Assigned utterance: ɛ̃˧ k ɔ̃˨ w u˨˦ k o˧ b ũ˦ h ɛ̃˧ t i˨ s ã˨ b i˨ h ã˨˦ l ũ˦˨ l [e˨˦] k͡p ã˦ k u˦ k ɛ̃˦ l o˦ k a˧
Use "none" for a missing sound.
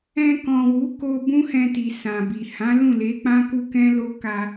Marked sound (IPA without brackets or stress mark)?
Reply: e˨˦